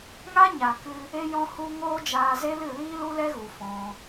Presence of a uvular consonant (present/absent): absent